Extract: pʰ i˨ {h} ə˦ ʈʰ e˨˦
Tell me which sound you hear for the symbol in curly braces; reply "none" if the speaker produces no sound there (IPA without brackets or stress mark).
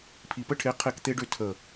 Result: p